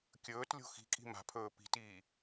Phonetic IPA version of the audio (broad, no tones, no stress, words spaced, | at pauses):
kʲɵːt lʲo̤xi̤kʼi̤ ma̤pʰɵː pi̤tiː